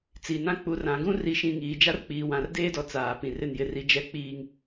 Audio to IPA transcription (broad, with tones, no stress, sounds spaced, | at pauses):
t͡s i˨ n ã˦ k͡p u˨ r ã˨ ɡ ũ˦ r i˨ ʃ ĩ˨ ŋ iː˨ d͡ʒ a˦ r k͡p iː˨ w ã˨ r d eː˦ d ɔ˨ t͡s aː˨ p ĩ˨ r ɪ˦˨ n j ɪ˦˨ r i˦ d͡ʒ ɛ˦˨ k͡p iː˦ ŋ